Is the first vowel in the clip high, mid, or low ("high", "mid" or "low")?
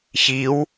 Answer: high